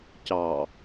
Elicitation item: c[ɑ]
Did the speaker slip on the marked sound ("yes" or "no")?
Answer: no